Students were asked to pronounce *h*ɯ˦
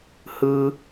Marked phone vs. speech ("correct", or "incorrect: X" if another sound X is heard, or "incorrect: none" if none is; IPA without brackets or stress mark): correct